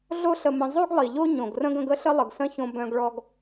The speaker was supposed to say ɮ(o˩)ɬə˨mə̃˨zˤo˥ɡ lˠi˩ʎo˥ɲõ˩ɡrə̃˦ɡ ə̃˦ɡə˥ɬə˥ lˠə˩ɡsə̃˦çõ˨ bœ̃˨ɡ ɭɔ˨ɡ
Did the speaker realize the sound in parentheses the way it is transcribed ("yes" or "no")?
no